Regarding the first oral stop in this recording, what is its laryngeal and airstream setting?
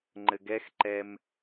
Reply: click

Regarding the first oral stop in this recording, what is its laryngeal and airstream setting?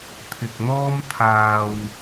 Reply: aspirated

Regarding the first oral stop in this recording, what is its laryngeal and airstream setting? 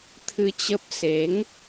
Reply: aspirated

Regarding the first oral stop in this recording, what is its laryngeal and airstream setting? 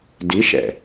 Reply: plain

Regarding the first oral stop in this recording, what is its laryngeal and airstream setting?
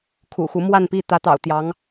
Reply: aspirated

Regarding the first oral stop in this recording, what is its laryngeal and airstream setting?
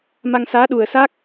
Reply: implosive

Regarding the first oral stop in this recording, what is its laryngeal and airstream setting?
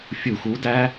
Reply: plain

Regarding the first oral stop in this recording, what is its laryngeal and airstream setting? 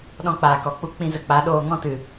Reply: implosive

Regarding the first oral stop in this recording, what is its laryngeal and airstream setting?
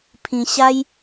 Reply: aspirated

